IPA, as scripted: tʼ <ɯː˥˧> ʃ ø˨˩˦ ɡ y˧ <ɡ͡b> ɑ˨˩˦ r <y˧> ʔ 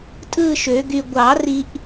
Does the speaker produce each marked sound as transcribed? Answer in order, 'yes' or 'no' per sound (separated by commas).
yes, no, no